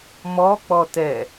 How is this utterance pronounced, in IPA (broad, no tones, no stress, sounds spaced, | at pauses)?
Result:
m ɔ k͡p ɔ t ɛ